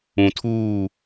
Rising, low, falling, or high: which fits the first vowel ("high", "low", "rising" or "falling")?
low